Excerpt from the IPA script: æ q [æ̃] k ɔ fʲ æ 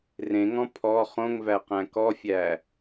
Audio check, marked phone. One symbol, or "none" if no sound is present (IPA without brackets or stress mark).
æ̃